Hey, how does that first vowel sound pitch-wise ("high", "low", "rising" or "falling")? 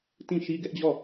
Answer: falling